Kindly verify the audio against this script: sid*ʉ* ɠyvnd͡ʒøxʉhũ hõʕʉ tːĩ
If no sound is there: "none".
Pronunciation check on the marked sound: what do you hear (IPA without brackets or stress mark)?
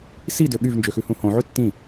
ø